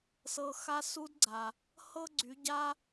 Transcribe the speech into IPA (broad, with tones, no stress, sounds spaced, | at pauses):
s ɤ˧ x a˦ s u˦ d ɡ͡ǀ a˨ | h ɤ˦ ɡ͡ǀ y˨˦ ɟ a˦